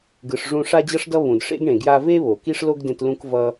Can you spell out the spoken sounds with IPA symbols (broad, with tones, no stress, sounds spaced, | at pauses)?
ɡ ɯ˧ ʂ ʐ ũ˦ ʂ a˧ d͡ʑ ʌ˧ ʂ d ʌ˧ β ũ˨ d ʂ ḛ˦ ɡ ɳ ẽ˨ ɡ j a˧ v e˦ β o˨ k i˦ ʂ l o˦ ɡ d ẽ˧ t l ũ˧ k v ʌ˧